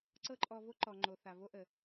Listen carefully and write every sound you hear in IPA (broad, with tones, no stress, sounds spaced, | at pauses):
ǀ ɤ˦ ǃʼ ɔ˧ v o˦ ǃ ɔ˨ ŋ͡ǃ o˨ θ a˨ v o˦ ʔ ə˨